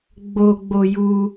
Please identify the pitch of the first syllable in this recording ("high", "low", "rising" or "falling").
low